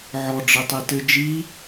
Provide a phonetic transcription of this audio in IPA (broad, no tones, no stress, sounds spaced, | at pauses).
ʕ ɔ ɖ͡ʐ ɘ tˤ i t ɘ d͡ʒ i